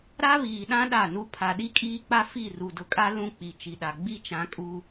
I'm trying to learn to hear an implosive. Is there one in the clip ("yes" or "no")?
yes